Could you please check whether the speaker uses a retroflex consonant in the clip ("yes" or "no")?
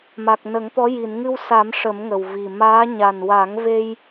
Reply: yes